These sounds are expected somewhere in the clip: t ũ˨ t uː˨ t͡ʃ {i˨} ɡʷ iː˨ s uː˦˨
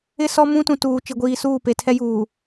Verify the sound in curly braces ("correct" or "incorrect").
correct